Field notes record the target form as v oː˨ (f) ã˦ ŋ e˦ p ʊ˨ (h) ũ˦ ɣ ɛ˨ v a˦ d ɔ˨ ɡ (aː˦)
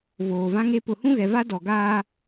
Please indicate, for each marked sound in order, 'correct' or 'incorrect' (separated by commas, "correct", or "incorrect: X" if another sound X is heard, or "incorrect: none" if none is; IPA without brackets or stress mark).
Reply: incorrect: v, correct, correct